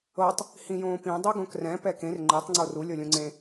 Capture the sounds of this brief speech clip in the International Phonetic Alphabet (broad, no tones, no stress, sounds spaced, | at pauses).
ɤ tˤ | h ĩ j õː p ĩ dˤ o ɡ õ k r ɛ̃ p ɛ k ẽ r ŋ͡ǃ e tˤ ŋ͡ǀ o r u lʲ ɤ lʲ ũ ŋ͡ǀ ẽ